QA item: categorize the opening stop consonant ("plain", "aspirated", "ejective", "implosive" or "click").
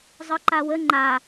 click